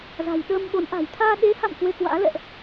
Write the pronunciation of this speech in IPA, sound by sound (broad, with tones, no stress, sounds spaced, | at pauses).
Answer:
z a̤˨˩ j ɗ əː˧ m ɓ o˨˦ n ʔ a̤˨˩ j t̪ʰ aː˧ ɗ e˨˦ h a̰˧˨ m k w e˧ k w a̰ː˧˥ l ɛ̰˧˨ ʔ